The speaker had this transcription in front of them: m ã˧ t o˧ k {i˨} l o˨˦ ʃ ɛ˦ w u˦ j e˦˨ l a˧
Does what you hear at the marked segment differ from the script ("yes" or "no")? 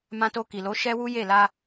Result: no